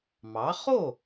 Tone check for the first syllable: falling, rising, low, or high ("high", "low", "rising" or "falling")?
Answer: rising